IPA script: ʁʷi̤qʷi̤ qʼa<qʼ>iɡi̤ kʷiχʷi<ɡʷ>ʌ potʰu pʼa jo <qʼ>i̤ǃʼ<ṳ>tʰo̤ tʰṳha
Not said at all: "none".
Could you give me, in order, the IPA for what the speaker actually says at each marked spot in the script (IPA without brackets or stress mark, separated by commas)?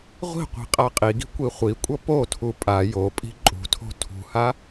qʼ, kʷʼ, pʼ, ṳ